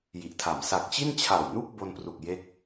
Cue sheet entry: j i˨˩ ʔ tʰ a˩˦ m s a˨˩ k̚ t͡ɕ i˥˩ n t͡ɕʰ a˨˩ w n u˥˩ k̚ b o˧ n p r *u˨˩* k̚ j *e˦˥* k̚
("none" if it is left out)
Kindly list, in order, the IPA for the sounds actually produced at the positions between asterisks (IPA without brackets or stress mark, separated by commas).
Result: u˨˩, e˦˥